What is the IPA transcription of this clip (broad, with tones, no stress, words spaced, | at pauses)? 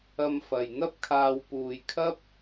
ɐ˧mfɐ˨jn̪ɐ˥p̚kʰaː˧w puː˨jkʰɐ˥p̚